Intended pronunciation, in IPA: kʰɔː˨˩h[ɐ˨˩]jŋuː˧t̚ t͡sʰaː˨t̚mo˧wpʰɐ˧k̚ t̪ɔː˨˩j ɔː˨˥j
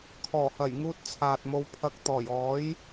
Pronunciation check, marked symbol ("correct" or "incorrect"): correct